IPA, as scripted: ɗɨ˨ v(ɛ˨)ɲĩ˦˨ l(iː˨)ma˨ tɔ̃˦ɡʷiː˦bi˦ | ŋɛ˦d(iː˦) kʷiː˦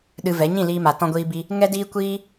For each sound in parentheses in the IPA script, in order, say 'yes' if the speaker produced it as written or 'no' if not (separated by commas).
no, no, yes